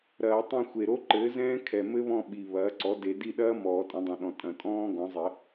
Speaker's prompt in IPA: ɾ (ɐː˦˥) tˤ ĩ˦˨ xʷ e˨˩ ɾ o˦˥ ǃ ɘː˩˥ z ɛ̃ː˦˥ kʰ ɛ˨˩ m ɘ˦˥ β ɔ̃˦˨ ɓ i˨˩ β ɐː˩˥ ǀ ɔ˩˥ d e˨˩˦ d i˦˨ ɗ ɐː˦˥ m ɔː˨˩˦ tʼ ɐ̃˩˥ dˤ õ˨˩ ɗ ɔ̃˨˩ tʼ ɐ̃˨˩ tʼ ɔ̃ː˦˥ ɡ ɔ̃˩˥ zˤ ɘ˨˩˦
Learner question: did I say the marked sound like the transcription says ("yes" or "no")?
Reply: no